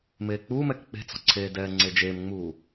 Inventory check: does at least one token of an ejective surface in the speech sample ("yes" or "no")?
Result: no